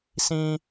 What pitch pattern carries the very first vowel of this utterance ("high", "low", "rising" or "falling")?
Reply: high